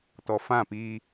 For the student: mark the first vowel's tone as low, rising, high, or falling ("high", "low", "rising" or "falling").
low